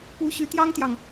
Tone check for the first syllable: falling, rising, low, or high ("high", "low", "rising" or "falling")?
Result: rising